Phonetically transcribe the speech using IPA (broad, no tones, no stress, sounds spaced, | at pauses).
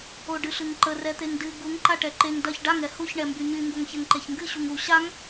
o ɖ ɨ ɬ ɨ ŋ ǃ ə r ɛ t̪ e ŋ d ɨ ɡ u ŋ ǃ a ʈ ɛ ǃ e ŋ d ɐ ç ɖ a ŋ ɛ h u ç ɳ ɛ m b y ɲ y ŋ ɡ o ŋ ç ɛ ŋ ǃ e ç ŋ ɡ ɨ ɕ u ŋ u ɕ a ŋ